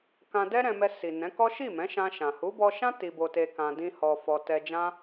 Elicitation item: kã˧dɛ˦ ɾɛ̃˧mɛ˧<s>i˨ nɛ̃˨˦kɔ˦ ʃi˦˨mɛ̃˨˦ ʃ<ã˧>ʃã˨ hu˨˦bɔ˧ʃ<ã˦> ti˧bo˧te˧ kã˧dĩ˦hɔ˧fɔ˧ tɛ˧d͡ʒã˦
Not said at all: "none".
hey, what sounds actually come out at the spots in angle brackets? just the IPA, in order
s, ã˧, ã˦

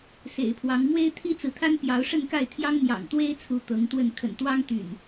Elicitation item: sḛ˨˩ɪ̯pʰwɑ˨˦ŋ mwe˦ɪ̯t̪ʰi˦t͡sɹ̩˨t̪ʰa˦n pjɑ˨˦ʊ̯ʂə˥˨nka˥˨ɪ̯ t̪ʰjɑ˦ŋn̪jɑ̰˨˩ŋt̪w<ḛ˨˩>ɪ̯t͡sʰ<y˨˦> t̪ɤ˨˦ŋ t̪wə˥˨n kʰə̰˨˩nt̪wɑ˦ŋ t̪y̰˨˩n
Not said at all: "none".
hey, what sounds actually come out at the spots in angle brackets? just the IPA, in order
e˦, u˨˦

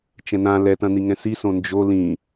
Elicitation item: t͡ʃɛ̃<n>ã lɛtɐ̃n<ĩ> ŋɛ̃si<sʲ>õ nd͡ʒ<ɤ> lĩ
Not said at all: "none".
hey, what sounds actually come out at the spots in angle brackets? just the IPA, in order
n, i, s, o

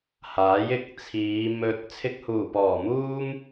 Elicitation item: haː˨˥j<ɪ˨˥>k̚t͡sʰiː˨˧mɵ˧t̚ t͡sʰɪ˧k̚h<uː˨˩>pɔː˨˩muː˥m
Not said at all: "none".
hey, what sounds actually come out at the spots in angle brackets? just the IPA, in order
ɪ˨˥, uː˨˩

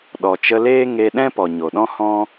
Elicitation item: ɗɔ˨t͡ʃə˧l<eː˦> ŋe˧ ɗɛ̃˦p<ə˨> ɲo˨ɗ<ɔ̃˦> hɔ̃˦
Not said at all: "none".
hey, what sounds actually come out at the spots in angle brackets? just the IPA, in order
eː˦, ɔ˨, ɔ̃˦

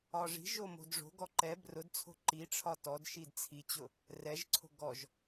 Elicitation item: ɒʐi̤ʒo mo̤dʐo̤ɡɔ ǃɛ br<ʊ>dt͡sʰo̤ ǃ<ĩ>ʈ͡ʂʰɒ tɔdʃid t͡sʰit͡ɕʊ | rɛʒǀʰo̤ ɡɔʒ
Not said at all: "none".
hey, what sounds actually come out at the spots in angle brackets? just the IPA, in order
ʊ, i

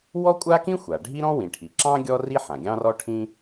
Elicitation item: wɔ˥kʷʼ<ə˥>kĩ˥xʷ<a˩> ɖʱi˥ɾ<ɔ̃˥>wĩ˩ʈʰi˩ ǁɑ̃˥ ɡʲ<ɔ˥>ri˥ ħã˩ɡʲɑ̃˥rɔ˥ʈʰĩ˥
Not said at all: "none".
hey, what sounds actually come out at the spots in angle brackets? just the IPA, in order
a˥, a˩, ɔ̃˥, ɔ˥

